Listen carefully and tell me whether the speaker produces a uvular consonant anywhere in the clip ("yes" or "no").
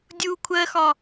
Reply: no